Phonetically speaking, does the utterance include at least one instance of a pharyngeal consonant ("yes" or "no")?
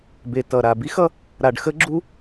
no